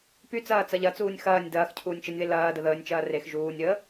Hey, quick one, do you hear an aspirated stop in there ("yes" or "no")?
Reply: yes